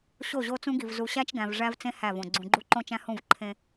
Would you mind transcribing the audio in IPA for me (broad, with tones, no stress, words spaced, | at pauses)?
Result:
ɕo˦˨ʑo˦t͡sũ˦ɡi˨v zu˨ɕæ˦t͡ʃɡæ̃˨v ʐæ˦vt͡sẽ˦ hæ˦˨võ˨ ɡ͡ǀũ˨ɡ͡ǃu˦ ǃõ˦t͡ʃæ̃˦hũ˦˨v ǃʰẽ˦